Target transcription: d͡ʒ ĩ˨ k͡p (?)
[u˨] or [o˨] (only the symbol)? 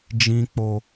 o˨